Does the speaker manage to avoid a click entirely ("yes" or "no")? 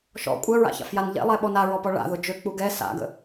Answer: yes